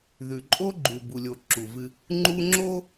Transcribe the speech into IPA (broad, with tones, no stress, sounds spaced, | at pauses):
ð ʉ˨ ǃʼ o˦ ɡ͡ǃ u˨ b u˨ lʲ o˨ ǁ u˨ v ɨ˦ | ŋ͡ǃ u˦ ŋ͡ǁ o˦